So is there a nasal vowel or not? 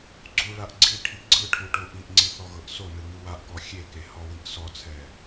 no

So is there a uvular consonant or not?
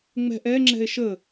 no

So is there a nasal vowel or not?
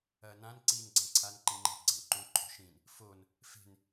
yes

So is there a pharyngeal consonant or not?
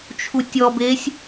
no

